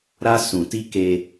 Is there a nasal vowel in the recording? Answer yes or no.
yes